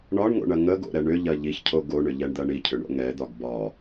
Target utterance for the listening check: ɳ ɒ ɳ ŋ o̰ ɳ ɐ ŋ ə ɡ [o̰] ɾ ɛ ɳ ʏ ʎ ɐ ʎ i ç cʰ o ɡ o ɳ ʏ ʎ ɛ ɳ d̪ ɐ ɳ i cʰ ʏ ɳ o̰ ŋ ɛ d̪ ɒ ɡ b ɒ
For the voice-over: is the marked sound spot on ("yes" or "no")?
yes